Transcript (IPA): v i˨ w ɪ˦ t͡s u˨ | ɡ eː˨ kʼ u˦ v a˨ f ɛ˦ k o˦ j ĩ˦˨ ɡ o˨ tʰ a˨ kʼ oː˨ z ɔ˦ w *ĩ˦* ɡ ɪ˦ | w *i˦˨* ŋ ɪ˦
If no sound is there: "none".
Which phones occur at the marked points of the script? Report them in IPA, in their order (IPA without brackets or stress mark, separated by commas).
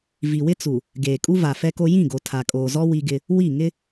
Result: i˦, i˦˨